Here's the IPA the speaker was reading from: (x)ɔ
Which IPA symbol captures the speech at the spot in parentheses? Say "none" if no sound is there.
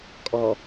kʼ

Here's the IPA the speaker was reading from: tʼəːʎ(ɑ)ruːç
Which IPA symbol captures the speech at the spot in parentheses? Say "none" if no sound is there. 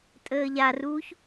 a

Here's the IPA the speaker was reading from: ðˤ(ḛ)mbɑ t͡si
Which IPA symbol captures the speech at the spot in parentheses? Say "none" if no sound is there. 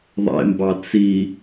ḛ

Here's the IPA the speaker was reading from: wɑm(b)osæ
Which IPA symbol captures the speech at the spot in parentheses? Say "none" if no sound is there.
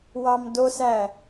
d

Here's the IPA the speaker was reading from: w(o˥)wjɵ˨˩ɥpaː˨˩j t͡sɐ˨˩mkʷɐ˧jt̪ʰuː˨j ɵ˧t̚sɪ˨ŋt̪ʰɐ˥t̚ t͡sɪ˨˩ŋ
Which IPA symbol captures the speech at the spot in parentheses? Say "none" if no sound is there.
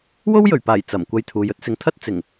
o˥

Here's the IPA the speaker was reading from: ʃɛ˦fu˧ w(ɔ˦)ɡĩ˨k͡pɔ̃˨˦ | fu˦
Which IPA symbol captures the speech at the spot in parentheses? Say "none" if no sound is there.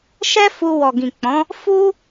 ɔ˨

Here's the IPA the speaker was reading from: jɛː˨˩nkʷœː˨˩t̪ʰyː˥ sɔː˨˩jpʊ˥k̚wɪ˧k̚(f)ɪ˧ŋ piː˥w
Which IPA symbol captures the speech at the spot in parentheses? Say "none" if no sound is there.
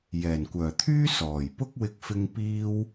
f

